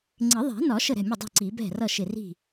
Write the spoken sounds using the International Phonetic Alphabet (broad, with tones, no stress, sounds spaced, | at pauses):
ŋ͡ǀ ɪ˨˩˦ ðˤ ɛ̤˨˩˦ n ɒ˨˩˦ ʃ ə˧˩ ɾ ɛ̤˥˩ mʲ ə˥˩ dˤ ɛ̤˥˩ ǀ i˨˩˦ b ɛ̤˥˩ r ʌ˥˩ ʃ ɪ˧˩ r i̤˥˩